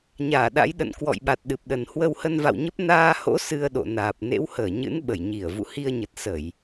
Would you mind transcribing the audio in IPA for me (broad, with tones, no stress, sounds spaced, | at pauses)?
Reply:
ɲ aː˧˩ ɗ a̰˧˥ j ɗ ə̰˧˨ n k w ɔ̰˧˨ j ɓ a˨˩ t̚ ɗ ɨ˨˩ p̚ ɗ ə˨˩ n h w ə˧ w h ə˧ n v a̰˧˨ w ɲ ə˦˥ p̚ n aː˧ h o̰˧˥ s ɨ˧ ə̯ ɗ o̰˧˨ n aː˨˩ p̚ n ḛ˧˥ w h əː˧˩ ɲ ɨ̰˧˥ n ɓ ə˧˩ j ɲ i˧˩ ə̯ v ṵ˧˨ h i˧ ə̯ ɲ ə˨˩ t̚ s ə˧˩˨ j